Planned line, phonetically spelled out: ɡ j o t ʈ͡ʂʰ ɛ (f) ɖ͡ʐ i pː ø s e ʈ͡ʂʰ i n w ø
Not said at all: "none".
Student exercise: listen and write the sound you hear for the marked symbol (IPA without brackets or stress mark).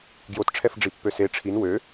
f